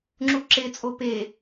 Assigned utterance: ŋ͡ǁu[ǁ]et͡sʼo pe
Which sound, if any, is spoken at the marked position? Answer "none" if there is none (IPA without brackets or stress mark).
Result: ǁ